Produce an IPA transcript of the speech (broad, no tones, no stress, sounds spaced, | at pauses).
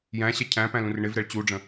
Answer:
j æ̃ ɕ ɛ cʰ æ̃ p æ̃ l ũ r ɳ ɪ v ɾ ɛ ɭ t͡ɕ u ɖ͡ʐ ə̃